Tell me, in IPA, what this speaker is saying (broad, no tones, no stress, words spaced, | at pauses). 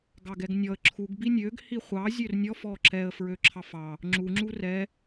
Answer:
ɡɑɡɛɡnʲɔə̯ ǁʰuɡ binʲøɡ hiχʷɑ zʲørnʲɔf ɔǁɛə̯ fɹøǁʰɑfɑ | ŋ͡ǁu ŋ͡ǁurɛ